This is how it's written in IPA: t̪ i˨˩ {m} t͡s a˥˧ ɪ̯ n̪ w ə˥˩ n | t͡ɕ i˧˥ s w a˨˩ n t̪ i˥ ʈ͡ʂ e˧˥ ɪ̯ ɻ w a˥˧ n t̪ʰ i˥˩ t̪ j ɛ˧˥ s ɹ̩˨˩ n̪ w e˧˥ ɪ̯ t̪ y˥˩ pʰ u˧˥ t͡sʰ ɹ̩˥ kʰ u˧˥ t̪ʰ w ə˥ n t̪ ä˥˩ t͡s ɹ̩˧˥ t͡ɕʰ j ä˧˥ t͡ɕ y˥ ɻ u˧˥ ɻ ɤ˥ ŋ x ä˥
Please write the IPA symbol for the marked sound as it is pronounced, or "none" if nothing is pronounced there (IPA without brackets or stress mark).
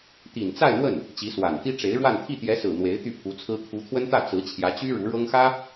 n